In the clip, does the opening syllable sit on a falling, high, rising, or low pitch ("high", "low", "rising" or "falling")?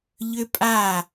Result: high